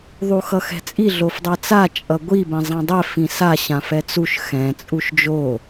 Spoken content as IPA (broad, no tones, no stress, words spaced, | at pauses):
ðˤuxʌxɛ̤t͡sʼi ɮofdˤat͡sa t͡ʃʼʌɡʷi bɛ̃zˤãdˤɛ fĩsa ɕãfɛt͡suʃ xɛ̃ t͡sʼuʃd͡ʒo